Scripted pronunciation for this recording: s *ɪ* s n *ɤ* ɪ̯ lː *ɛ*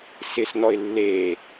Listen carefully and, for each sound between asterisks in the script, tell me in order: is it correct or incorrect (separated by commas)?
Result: correct, incorrect, incorrect